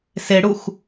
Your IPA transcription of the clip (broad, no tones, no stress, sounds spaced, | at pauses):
s e ɽ u x